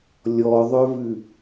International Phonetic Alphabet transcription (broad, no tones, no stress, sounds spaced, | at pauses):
lʲ ɔ ðˤ œ v ʉ